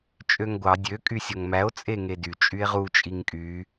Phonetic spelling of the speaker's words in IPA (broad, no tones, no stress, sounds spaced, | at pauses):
t͡ʃʼ ø ŋ ɡʷ ɑ dʲ ø kʼ y sʲ o ŋ m æ o̯ t͡sʼ e ŋ e d y t͡ʃʼ y e̯ ʁ u t͡ʃʼ i ŋ kʼ y